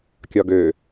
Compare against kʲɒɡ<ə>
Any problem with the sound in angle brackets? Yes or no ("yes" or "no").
yes